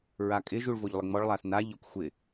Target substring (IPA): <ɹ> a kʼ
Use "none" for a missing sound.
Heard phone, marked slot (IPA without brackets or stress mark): ɹ